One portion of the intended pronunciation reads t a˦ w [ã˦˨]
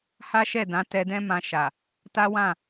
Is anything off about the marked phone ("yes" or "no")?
no